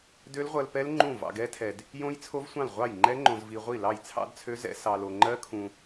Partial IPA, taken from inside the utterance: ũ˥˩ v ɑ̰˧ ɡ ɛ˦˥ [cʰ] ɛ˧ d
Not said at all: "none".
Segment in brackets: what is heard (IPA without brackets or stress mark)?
tʰ